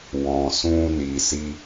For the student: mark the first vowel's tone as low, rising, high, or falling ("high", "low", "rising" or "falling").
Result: low